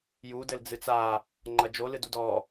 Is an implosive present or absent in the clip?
absent